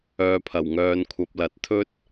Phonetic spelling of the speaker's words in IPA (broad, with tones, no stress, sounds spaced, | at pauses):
œː˨ pʰ ɐ˨˩ w ŋ œː˨ n kʷʰ ɐ˨ p̚ l ɐ˨ t̚ t̪ʰ ɵ˥ t̚